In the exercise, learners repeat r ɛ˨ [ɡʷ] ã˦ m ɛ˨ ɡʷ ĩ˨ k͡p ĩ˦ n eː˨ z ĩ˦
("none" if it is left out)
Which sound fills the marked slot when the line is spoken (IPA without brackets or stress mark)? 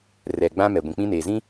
ɡ͡b